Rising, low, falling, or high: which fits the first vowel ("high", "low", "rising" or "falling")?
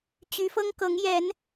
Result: rising